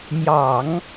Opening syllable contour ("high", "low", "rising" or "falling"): low